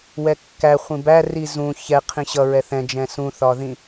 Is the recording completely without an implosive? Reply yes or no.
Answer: yes